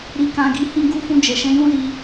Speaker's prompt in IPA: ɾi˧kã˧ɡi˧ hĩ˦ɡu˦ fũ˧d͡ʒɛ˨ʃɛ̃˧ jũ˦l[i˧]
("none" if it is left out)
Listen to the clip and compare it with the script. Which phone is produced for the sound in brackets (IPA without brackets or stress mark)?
i˧